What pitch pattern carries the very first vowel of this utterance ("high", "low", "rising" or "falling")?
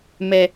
low